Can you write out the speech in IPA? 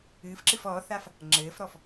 ɨːfǁɨf ɔθaf | ŋ͡ǁɘːfɾɔf

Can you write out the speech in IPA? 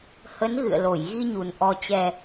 hə˨˦n ɣɨ̰˧˨ə̯lo˧˩jɣi˧ɲu˨˩n ʔɔ˨˩t͡ɕɛ˨˩

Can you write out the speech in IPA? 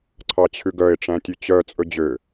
ǀʰɑt͡ɕʰʉɡœɪ̯ ʈ͡ʂæ̃tʲʉt͡ɕœ t͡sʼɵd͡ʑø

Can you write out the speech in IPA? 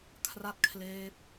kʰra˥˩t̚kʰleː˦˥p̚

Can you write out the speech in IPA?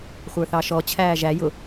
χʷə˞θɑʃɔ t͡ɕʰæːʒæ jʊ

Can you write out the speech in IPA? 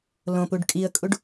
lõpuɖ kʼiə̯kʼuɖ

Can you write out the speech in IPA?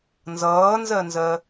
nzʌːnzɜnzɜ

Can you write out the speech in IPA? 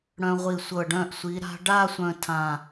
ɽœ̃˧ʁʷi˧˩sʷɤ˧˩ ɖœ̃˥˧ʔ sʷi˩˧ɾa̤˧ɖa˥˧ sʷœ̃˥˧tʰã˧˩

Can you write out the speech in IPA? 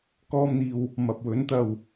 kɔː˧mn̪iː˨w | mɐ˨p̚wɵ˨˥nt̪ɐ˨w

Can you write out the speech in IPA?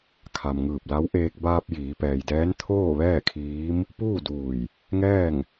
kʰa˩mŋɯː˧˩p̚la˧˥w ʔeː˧k̚ baː˧p̚ jiː˩˧pɛː˩jdɛː˧˥n t̪ʰoː˥˨ʋɛː˥˨kʰiː˧˥m | puː˥˨duː˧˩j | ŋɛː˥˨ŋ

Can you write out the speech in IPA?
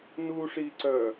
nuʂiǀœ

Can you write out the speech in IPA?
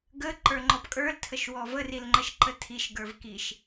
ɡə ǃə˞ŋ͡ǃɔpkʼə˞l tʰəʃwɔvə rilŋ͡ǃəʃǃətʰiʃ ɡə˞vkiʃ

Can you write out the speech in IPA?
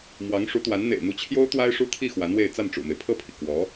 mwɑ˧˥ŋʂu˧˥t̪wa˧˥n n̪ḛ˨˩ɪ̯n̪u˧˥t͡ɕʰjo˥ʊ̯ t̪wa˥ɪ̯ʂu˥t̪ʰi˥˩ xwa˧˥nwe˥˧ɪ̯ t͡sa˥˩nʈ͡ʂṵ˨˩me˦ɪ̯ pʰɤ˥˩pʰi˩ kwɔ˧˥

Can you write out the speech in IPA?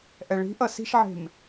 ʔɛɭi̤ ʔʌsi̤ʃʕe̤m

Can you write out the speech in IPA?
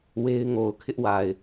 we˦ɪ̯ ŋo˨ʊ̯kʰɪ˦ʔwa˨ɪ̯

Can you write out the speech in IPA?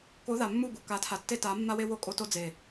ko˨˦ða˨mːu˦˨ɡu˨ ka˨˦tʰa˨tːe˦ ta˨˦mːa˦we˦ wo˦kʼo˦to˦d͡ze˨

